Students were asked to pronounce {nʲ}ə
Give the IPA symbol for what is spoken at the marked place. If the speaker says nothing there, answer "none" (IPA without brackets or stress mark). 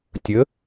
tʲ